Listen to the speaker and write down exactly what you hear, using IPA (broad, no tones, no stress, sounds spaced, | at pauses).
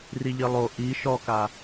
r i ʎ i lˠ o ʔ i ʃ ɔ k a